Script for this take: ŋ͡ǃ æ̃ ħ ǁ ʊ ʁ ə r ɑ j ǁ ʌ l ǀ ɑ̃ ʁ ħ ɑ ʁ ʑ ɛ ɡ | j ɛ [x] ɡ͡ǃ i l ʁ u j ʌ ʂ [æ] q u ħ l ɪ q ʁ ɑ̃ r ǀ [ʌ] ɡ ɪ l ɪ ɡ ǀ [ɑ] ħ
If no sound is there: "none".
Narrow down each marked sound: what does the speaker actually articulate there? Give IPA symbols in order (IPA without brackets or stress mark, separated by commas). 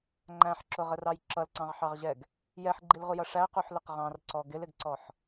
ħ, æ, ɔ, ɔ